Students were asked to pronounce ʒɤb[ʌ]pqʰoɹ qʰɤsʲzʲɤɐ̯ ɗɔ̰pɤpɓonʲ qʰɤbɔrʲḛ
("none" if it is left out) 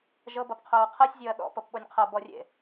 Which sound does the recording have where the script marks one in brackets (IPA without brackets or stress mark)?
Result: ʌ